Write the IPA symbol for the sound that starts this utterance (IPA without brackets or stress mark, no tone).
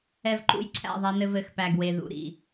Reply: ɛ